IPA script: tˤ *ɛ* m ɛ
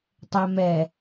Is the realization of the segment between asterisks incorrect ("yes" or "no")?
no